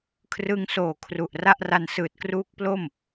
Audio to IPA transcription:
kʰ r ɯ˧ ŋ s oː˨˩ kʰ r u˨˩ ʔ r a˥˩ ʔ r a˧ n s ɯː˨˩ t̚ k r uː˦˥ k̚ p l o˥˩ m

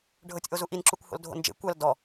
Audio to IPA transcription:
ɖʱ ɤ tʲ ʔ o z u ʔ i n ǁ u kʷ h o̰ l dʱ o̰ n d͡ʒ ḛ kʷ a l d ɔ

